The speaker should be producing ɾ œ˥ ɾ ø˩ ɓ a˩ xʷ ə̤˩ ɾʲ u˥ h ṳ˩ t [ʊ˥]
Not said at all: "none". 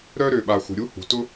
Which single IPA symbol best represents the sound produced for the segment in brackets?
ʊ˥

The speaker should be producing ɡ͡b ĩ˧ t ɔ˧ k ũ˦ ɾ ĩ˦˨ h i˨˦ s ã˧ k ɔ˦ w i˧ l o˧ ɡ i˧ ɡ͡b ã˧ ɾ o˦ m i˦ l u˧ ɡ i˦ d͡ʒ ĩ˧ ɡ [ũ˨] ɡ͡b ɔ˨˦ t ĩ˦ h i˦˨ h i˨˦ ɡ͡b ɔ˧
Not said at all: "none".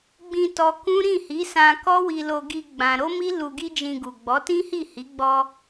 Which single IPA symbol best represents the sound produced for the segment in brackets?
u˨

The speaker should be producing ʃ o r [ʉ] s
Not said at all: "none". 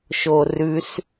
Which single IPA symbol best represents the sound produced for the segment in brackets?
ʉ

